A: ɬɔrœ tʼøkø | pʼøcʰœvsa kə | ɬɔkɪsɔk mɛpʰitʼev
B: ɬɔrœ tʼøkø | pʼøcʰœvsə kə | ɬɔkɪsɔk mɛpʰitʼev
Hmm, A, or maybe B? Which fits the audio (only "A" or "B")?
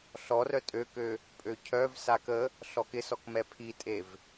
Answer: A